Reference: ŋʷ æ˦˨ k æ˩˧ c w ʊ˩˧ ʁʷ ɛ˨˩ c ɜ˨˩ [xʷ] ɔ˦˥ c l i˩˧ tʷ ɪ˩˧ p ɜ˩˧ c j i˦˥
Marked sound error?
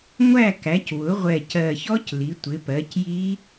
yes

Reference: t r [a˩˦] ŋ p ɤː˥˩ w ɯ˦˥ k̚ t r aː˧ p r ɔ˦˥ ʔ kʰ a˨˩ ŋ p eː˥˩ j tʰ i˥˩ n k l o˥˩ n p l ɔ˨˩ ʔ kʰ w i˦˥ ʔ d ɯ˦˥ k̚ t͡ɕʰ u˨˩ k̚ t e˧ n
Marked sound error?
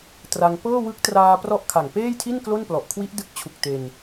yes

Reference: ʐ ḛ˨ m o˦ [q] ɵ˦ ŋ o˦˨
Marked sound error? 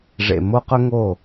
no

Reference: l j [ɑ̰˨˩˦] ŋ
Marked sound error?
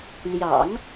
no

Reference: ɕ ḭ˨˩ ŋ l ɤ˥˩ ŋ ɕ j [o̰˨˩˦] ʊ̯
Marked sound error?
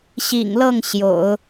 no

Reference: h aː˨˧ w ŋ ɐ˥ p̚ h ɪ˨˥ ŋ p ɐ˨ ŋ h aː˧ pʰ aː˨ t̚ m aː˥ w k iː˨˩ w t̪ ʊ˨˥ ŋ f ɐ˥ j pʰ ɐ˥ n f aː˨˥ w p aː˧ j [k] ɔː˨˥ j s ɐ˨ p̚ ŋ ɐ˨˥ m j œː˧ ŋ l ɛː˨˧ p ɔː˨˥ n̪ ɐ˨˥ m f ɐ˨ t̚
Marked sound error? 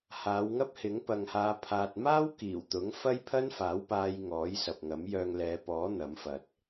yes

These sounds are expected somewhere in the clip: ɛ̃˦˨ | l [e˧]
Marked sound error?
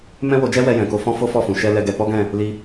yes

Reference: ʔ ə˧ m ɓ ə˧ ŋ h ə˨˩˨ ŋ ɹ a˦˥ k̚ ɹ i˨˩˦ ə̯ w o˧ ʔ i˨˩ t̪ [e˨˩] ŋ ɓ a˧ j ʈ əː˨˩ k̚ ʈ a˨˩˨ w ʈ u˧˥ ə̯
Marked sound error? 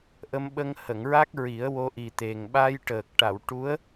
no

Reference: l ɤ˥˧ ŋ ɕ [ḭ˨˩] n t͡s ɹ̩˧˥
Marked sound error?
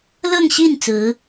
yes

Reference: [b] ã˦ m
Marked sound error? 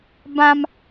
no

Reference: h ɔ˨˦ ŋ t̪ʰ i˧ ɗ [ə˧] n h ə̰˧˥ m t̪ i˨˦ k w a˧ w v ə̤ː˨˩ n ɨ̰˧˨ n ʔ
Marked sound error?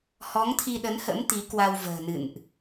yes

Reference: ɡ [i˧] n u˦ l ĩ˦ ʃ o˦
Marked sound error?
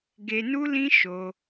yes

